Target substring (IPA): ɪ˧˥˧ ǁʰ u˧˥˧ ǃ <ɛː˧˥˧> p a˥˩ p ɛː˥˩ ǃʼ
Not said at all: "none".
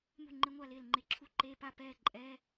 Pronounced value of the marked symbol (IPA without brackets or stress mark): eː˧˥˧